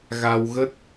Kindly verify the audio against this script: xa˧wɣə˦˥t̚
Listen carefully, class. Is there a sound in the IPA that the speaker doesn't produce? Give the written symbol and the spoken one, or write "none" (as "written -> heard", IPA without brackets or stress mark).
x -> ɣ